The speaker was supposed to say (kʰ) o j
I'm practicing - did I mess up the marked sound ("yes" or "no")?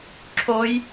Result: yes